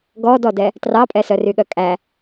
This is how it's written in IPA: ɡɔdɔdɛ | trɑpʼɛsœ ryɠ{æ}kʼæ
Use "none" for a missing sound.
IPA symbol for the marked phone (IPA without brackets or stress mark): œ